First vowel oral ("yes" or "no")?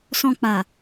no